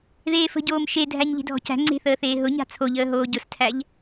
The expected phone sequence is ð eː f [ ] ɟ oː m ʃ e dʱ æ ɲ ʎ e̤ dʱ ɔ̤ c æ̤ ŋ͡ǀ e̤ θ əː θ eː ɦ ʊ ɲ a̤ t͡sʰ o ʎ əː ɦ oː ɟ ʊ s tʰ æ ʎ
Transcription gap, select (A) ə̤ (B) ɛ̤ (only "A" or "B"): A